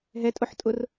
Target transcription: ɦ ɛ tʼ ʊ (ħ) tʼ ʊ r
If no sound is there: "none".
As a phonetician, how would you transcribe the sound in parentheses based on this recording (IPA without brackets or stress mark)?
ħ